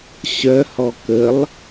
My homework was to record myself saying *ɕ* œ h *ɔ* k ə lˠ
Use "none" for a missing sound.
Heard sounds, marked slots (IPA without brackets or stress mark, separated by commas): ɕ, ɔ